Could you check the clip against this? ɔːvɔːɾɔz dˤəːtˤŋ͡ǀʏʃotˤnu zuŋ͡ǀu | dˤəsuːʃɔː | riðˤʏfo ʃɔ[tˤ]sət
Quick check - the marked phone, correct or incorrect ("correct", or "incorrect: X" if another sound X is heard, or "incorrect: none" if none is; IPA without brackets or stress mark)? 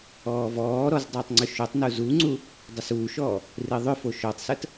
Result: correct